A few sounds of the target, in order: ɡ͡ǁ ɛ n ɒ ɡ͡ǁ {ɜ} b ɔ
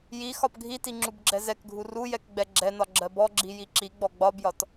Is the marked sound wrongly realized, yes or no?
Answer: no